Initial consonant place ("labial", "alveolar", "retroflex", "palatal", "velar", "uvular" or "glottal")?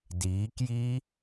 alveolar